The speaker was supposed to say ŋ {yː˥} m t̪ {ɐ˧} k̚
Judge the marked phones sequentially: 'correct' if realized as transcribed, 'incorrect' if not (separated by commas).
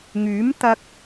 incorrect, correct